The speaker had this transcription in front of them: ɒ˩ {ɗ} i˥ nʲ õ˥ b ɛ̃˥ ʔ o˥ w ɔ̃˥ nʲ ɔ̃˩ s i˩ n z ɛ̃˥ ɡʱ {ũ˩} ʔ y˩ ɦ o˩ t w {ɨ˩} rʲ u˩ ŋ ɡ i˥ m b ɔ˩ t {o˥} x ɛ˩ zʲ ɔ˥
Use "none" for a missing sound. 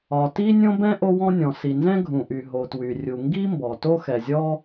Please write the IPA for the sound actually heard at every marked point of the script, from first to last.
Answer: t, ũ˩, y˩, o˥

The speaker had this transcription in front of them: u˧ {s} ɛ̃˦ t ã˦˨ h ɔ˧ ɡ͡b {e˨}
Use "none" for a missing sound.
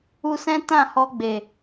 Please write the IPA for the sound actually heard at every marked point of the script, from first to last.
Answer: s, e˨

